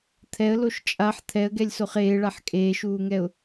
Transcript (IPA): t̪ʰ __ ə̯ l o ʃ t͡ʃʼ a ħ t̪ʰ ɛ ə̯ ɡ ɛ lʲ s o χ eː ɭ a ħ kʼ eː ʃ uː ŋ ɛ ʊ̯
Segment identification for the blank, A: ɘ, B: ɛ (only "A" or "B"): B